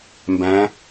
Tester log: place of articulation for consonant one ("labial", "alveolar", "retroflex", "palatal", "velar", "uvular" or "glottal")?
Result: labial